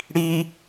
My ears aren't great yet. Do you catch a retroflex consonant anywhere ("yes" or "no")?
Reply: yes